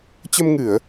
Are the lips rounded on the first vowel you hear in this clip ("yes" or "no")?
no